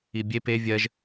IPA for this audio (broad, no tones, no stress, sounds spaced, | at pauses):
i bʲ e p e vʲ ɜ ʒ